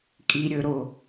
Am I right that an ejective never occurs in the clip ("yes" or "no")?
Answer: no